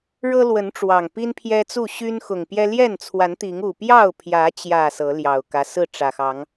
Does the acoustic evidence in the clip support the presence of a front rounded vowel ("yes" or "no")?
yes